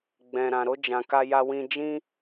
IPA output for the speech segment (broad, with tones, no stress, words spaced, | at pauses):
ɡ͡bɛ̃˨ɾã˨ ɾo˧ d͡ʒã˨ka˧ja˧ wĩ˧ d͡ʒĩ˦